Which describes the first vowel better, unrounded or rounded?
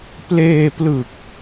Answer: unrounded